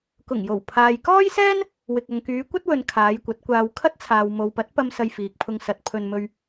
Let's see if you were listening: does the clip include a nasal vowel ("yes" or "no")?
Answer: no